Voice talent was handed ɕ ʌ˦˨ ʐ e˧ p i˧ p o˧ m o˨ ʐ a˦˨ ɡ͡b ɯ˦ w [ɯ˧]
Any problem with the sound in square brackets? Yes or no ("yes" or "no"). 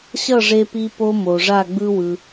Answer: no